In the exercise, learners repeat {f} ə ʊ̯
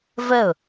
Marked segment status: incorrect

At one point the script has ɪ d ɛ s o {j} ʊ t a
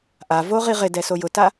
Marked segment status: correct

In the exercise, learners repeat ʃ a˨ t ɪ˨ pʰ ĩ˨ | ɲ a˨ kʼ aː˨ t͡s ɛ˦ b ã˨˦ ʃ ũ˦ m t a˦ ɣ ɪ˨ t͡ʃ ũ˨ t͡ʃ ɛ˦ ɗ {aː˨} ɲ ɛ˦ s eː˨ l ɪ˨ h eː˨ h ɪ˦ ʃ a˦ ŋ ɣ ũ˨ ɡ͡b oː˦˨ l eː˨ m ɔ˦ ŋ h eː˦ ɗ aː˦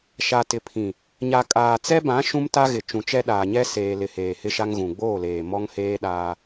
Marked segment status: correct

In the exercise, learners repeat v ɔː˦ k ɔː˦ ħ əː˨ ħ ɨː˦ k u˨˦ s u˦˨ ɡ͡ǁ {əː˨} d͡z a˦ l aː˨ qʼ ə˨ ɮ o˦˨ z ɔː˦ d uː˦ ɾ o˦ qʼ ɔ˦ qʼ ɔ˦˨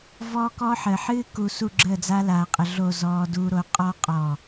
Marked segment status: incorrect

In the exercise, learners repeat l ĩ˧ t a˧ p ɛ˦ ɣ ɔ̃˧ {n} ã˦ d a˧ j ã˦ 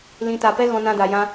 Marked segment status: correct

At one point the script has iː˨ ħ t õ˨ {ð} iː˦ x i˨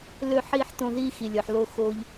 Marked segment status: correct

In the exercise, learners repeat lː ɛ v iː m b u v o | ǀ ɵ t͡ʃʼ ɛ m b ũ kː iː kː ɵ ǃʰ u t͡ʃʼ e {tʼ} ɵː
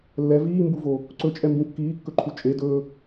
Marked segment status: incorrect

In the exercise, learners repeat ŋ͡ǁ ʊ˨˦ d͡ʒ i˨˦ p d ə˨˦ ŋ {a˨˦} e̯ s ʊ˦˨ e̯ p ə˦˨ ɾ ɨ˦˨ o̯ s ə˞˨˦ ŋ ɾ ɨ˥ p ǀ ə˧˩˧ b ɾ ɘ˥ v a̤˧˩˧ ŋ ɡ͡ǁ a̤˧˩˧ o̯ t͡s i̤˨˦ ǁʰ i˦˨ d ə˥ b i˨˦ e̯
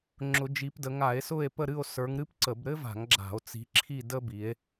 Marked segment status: incorrect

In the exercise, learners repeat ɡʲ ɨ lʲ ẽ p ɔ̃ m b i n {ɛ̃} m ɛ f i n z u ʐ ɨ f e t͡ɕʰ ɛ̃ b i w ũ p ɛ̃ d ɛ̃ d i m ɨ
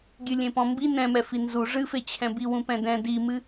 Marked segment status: correct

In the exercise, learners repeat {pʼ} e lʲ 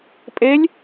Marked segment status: correct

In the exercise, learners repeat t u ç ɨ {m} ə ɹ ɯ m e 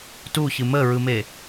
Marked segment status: correct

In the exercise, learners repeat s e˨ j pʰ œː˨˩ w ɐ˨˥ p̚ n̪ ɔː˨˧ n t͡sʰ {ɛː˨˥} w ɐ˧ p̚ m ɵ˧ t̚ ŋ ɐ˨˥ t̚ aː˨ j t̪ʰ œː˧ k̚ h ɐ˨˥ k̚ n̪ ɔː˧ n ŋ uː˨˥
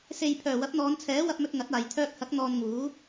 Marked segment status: correct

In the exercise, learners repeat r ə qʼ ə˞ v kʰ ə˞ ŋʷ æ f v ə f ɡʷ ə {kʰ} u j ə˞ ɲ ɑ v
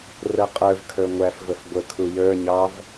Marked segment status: correct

